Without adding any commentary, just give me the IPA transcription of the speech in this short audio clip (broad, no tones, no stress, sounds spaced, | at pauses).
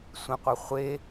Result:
sʷ ẽ qʷ œ χʷ e